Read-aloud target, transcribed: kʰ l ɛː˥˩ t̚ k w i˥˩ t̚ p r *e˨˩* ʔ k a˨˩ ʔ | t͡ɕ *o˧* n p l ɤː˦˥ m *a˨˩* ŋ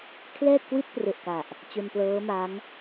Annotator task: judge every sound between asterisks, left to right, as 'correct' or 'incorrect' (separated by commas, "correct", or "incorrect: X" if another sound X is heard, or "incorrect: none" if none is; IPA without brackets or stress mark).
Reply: correct, correct, incorrect: a˦˥